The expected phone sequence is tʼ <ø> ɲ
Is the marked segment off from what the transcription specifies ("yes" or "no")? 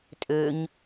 no